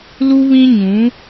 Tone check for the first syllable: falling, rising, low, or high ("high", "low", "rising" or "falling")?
high